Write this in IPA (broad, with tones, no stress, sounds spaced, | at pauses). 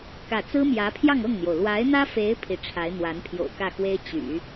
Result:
k ä˥˩ t͡s ɹ̩˥ m j ä˧˥ pʰ j ɑ˥˧ ŋ ɤ˥˩ ŋ n̪ j o˩ ʊ̯ l w a˧˥ ɪ̯ n̪ ä˥ f e˧˥ ɪ̯ pʰ i˧˥ ʈ͡ʂʰ a˧˥ ɪ̯ n̪ w a˧˥ n pʰ j o̰˨˩ ʊ̯ k ä˥˩ x w e˥ ɪ̯ t͡ɕ y̰˨˩˦